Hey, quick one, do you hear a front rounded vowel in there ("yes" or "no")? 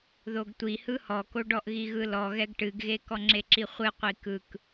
no